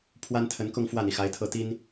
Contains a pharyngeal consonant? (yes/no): no